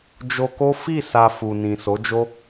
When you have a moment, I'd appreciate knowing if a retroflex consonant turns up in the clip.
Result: no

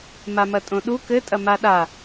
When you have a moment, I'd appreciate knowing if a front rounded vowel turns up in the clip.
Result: no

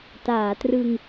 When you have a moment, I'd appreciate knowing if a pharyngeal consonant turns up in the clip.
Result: no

